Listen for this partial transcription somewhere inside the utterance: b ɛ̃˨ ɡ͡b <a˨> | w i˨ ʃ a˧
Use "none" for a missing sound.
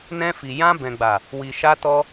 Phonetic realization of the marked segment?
a˨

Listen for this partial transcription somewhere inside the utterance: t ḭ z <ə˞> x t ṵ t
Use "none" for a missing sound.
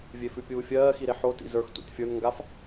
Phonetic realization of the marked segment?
ə˞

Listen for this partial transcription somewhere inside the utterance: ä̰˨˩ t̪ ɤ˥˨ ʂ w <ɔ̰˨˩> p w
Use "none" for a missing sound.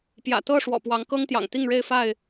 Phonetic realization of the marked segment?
ɔ̰˨˩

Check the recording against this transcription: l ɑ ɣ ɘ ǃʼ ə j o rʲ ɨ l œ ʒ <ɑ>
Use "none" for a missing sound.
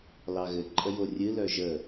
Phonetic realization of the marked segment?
ə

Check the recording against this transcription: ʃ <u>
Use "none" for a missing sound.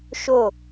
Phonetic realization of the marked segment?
o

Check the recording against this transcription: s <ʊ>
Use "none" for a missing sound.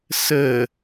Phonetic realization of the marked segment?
ə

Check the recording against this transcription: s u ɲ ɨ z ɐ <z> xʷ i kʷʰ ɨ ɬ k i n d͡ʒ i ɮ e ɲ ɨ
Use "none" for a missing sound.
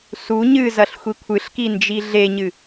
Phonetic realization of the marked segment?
ɬ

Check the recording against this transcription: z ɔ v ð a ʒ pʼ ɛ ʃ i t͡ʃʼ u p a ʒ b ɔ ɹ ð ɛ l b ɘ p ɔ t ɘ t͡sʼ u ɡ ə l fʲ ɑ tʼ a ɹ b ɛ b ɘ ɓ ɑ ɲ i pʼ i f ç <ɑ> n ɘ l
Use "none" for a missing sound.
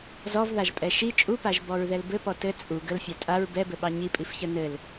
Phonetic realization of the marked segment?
ə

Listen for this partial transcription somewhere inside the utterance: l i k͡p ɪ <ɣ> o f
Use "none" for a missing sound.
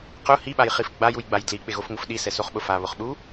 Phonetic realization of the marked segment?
ɣ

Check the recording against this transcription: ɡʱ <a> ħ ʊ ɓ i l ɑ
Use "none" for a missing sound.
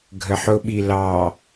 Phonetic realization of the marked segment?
ə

